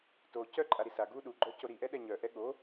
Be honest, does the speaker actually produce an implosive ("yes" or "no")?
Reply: yes